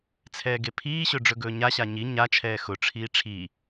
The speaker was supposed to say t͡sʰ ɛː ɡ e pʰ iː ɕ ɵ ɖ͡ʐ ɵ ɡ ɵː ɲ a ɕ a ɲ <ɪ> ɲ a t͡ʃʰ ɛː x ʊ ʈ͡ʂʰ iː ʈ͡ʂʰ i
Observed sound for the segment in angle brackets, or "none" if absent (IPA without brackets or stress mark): i